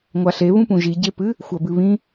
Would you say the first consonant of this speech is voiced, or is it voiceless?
voiced